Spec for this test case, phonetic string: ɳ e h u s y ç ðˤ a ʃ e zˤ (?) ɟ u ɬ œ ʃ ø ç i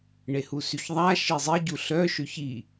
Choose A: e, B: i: B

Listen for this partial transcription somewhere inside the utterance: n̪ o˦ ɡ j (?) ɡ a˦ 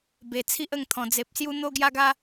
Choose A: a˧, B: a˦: B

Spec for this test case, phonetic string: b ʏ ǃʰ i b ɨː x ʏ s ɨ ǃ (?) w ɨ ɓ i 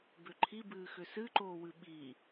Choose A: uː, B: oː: B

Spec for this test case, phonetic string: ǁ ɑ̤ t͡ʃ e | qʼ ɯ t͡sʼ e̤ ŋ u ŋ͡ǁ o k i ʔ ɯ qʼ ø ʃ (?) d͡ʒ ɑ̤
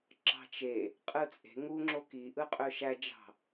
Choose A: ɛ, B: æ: B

